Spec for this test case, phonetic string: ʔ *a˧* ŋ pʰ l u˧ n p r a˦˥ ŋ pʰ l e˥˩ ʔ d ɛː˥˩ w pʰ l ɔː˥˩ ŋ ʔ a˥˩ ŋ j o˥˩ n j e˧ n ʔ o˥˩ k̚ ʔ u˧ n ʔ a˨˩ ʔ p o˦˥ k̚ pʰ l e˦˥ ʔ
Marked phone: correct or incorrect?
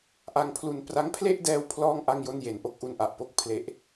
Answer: correct